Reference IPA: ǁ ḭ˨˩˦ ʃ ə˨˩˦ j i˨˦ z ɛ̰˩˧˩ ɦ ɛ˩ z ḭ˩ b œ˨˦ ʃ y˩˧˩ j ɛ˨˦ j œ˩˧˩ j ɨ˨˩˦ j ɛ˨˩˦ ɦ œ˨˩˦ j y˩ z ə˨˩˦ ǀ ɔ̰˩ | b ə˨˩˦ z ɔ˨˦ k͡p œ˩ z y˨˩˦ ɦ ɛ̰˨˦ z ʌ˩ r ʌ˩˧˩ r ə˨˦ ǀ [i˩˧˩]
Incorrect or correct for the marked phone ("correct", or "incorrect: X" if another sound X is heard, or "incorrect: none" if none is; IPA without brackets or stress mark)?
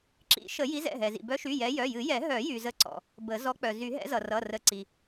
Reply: incorrect: i˩